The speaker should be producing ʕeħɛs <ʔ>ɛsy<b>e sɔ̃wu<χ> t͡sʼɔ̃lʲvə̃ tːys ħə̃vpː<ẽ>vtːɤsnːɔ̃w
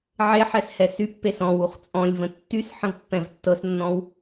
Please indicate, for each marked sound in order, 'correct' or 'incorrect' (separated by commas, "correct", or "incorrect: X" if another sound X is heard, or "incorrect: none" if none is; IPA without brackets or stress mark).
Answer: incorrect: h, incorrect: pː, correct, incorrect: ɛ̃